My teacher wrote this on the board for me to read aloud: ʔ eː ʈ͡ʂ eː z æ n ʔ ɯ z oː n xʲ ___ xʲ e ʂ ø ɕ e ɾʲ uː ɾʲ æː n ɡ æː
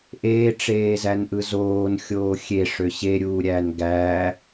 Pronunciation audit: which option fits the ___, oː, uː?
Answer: oː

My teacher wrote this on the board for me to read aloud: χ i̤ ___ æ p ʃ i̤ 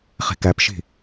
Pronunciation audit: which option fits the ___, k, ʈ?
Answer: k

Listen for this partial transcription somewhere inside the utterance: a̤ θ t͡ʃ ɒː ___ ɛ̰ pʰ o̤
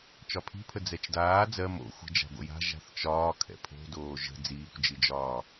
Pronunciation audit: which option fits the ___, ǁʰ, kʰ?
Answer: kʰ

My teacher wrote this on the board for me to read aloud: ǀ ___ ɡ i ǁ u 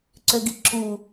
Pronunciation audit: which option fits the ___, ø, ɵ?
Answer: ø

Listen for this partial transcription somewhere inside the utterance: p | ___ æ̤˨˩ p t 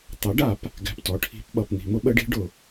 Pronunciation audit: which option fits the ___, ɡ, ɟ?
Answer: ɡ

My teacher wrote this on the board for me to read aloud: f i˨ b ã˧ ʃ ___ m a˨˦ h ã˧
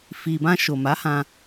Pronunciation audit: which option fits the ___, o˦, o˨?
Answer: o˨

